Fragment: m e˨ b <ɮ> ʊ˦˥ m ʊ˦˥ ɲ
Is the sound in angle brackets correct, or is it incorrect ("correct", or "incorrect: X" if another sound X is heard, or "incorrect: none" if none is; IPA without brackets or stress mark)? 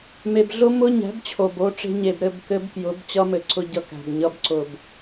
correct